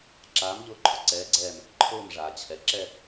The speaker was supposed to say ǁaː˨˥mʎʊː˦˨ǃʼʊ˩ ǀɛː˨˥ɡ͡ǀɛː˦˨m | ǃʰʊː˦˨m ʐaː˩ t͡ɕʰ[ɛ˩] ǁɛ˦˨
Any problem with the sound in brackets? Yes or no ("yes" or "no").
no